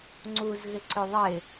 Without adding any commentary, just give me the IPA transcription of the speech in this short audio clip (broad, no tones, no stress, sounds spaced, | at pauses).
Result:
ŋ͡ǀ u z ɣ ɪ ǀ ø ðˤ ɪ